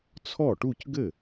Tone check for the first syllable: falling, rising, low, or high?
falling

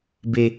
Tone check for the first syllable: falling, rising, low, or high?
low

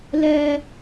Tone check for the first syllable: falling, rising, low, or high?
high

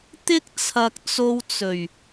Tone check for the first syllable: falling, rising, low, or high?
high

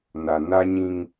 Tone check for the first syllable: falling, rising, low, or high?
low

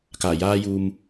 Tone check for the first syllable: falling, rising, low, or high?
low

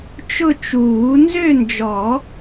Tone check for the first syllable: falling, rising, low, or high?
falling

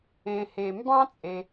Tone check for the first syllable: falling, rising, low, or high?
low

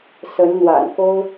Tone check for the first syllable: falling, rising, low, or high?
rising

